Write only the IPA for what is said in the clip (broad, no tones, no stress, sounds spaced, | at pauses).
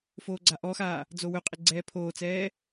f oː ɡ͡ǀ a ʔ ɔ x aː | d͡z o w ɵ qʼ ɪ ɡ͡ǀ ɛː pʰ oː t͡s ɛː